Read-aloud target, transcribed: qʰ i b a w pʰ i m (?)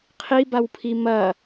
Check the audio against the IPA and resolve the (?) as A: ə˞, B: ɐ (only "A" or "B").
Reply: B